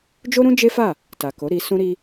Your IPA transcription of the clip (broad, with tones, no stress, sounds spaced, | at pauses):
d͡ʒ o˦ ɾ ũ˦ d͡ʒ e˦ f a˦˨ | t a˨ k o˨˦ ɾ i˧ s ũ˦ ɾ i˦